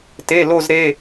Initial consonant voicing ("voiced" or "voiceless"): voiceless